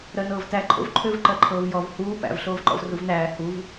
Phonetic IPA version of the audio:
ɾ ɜ n ɤː v t æ ǃʰ o̰ v ǃʰ ø v ǃ ɜ ǃʰ ɤː v j ɔ v h uː p æ̰ v ɬ oː v ǃ ɔ̰ v r u v n æː h u v

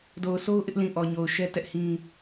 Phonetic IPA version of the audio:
d o˨ ʊ̯ sʰ o˦ ʊ̯ ʔ ɪ˦ ʔ l ĩ˨ ʔ ɔ˨ ɲ o˨ ʊ̯ ʃ ɛ˦ t ɛ˦ ʔ h ĩ˦

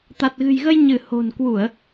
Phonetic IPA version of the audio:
t̪ a˨˩ t̚ ɣ ɨ̤˨˩ j ɣ ə˧ j ɲ ɨ˧˩ h o̤˨˩ n k w u˧˩˨ ə̯

